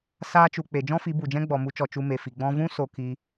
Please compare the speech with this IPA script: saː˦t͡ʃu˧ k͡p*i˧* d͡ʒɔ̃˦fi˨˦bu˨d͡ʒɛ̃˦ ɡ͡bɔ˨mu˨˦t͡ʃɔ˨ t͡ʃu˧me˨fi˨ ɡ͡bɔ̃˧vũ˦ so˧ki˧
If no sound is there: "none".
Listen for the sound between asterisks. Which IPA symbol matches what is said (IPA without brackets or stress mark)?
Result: e˧